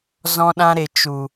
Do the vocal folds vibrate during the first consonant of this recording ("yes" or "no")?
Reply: yes